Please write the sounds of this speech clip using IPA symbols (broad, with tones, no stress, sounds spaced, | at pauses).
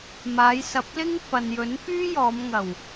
m aː˨˧ j s ɐ˨ p̚ l ɪ˥ ŋ f ɐ˨ n j ɵ˨˥ n f yː˥ j ɔː˨˧ m ŋ ɐ˨˩ w